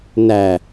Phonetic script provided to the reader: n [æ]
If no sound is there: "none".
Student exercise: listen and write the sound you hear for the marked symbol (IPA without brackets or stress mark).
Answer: æ